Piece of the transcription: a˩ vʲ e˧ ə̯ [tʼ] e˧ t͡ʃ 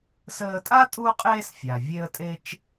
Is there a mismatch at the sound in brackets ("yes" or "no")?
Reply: no